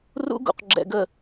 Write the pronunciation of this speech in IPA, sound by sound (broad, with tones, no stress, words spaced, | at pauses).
rṵ˦ɡṵ˨q ɡ͡ǁɛ̰˨ɡə˨